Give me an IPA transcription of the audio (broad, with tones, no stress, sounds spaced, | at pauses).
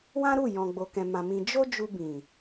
w ã˦ ɾ u˦˨ j ɔ̃˨ ɡ͡b o˨ k ɛ̃˨ m ã˨ m ĩ˧ d͡ʒ o˦ d͡ʒ u˧ b ĩ˨